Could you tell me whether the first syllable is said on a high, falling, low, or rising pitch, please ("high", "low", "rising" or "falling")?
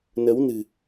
rising